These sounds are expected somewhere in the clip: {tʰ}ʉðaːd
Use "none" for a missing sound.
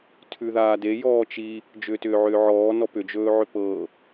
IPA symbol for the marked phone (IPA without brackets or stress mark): tʰ